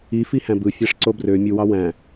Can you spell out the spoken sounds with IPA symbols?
ifihæ̃b ɯfʲɑʂǀo brø mʲuwɑ wæ̃

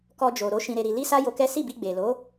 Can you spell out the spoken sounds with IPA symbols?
kɔ˧d͡ʒo˨ɾo˨˦ ʃĩ˧ɾe˧ɾi˧ li˦sa˦jo˧kɛ˦ si˦˨bi˧ɡ͡be˨lo˨˦

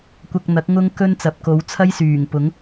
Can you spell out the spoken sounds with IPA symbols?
kʷɐ˧k̚n̪ɐ˨˥k̚ ŋʊ˥ŋkɵ˥n t͡sɐ˨p̚ko˨˧w t͡sʰɐ˥jsyː˨˩ŋ pʊ˨˥ŋ

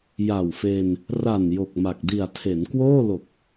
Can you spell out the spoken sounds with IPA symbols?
ja˨˩wfe˧n | ra˨˩n jo˨˩k̚ma˨˩k̚ di˨˩a̯tʰe˩˦n kwoː˥˩lo˨˩k̚

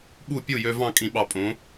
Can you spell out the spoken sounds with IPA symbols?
ɓu˥˩pʲu˥˩ jø˧vɑ̃˥˩ kʼĩ˨˥ɓɑ˧pʼõ˨˥

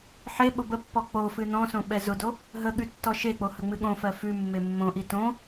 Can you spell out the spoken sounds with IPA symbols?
ħe ɓʊbəpːɔ k͡pofɨ nɔ̃sõ ɓɛzʊdo | ɦəɠʉ tːɔʃek͡po həŋ͡mɨɠõfɜ fʉ mːemːõʔi tõ

